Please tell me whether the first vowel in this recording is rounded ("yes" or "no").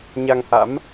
no